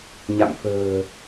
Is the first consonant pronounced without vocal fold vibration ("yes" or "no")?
no